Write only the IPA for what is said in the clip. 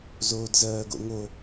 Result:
zoːdzɜːɡo̰ŋo

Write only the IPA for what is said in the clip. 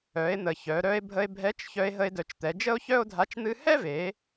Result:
œ˩˧e̯n̪ə˩ çœ˩˧ ɾœ˧e̯bʱə˧e̯ bʱɛ˧˥t͡ʃ çœ˧e̯ɦə˧e̯dœ˩˧t͡ʃt̪ɛ˩˧ d͡ʒə˥o̯çœ˥o̯dʱa˧˥t͡ʃ n̪ɨ˧hɛ˥ve˩˧

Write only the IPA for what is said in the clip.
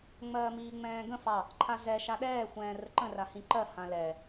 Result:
ŋ͡mɜːmiːŋ͡mɛ̃ːɡə̃ fɑ | ǃʰazɛ ʃaɗɛː xʷɛ̃ːrəǃə̃ rahĩǃɜ hãlɛ

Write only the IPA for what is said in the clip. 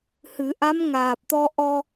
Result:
hɨ˨˩˦ ʔa˧˥mŋaː˨˩p̚t̪ɔ˧ ʔɔ˧

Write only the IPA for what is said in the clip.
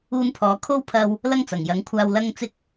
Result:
uː˧npʰɔː˨˧ kʰo˥wpʰɐ˧w | lɐ˥ŋt͡sɐ˨˩ŋjɐ˨˥ŋkʷʰaː˧w lɐ˥ŋt͡sɪ˥k̚

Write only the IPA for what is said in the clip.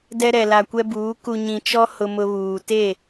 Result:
dɛ˦ ɾɛ˨la˨kʷɛ˦buː˨˦ ku˨ɲĩ˨t͡ʃɔ˦ hʊ˦mʊ˦βuː˨ te˦˨

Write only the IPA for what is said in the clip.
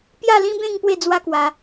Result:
pja˥˧lĩ˦bẽ˥˧ŋ pwe˥˧d͡zwa˦kwa˧

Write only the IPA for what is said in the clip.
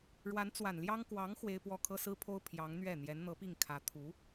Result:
ɻwa˧˥nt͡swa˨˩nljɑ˥ŋ kwɑ˧˥ŋ xwe˥ɪ̯pwɔ˥˩ kʰɤ˥sɹ̩˥pʰo˥ʊ̯ pʰjɑ˧˥ŋ n̪ɥɛ˥˩ n̪jɛ˧˥nn̪ɤ˧˥pi˥˩ŋkʰä˧˥ t̪ʰu˧˥

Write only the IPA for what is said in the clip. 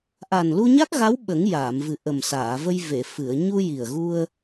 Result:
ʔa˨˩nlu˧ɲa˦˥k̚ɣa˧˥w ɓə˨˩˦ŋ jaː˨˩˨mvɨ˨˩ ʔə˨˩msaː˨˩˨və˧j ve˨˩˨fɨ˨˩˨ə̯ ɲu˧ji˨˩ə̯ɣu˧ə̯

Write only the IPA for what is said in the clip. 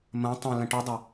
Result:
mɐ̃ tˤɐ̃ lɐ̃ʈɔdˤa

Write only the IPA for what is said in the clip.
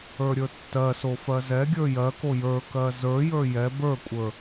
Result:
ə˞ɾʲə˞tːɜso fɜzɛɡʲə˞ jɜko jə˞kɜ zə˞jə˞ jɛ bə˞kʷʼə˞

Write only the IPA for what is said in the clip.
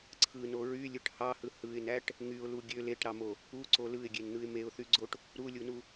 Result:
ǀʰɯno ɹylʲɯʈ hɑhɯ hɯɪ̯næʈ | ŋyʊ̯lu ɡʲø leʈɾɑmo | uǀo lɯɪ̯ɡʲenn̪ɯɪ̯ meʊ̯θyɡ͡ǀoʈ | ɾulʲunu

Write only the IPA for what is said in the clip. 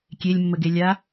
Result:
kʲelʲmːəɡe lʲa

